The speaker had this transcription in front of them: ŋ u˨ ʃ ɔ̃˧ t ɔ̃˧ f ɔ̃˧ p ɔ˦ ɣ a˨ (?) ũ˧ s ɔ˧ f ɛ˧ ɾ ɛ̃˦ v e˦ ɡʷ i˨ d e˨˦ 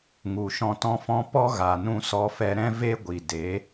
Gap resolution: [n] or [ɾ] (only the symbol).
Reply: n